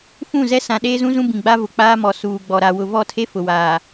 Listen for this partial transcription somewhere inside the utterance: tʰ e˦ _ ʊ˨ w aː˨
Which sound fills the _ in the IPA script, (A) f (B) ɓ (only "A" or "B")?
A